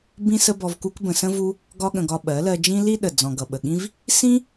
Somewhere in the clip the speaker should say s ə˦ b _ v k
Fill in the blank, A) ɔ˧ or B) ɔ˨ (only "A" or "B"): A